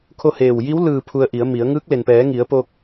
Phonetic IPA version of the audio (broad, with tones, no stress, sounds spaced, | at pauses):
kʰ o˥˨ h eː˧˩ w j i˧˥ w l ɯː˧˩ pʰ u˧ ə̯ ʔ i˩˧ ə̯ m i˩˧ ə̯ ŋ ɯː˧˥ k̚ l e˩ n p ɛː˩˧ ŋ i˩˧ ə̯ p o˧ k̚